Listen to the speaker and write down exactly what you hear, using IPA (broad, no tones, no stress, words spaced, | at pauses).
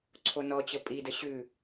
ǀʰonɔt͡ɕə pʼidə ɕʉ